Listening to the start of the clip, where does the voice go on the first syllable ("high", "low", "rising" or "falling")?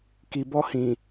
low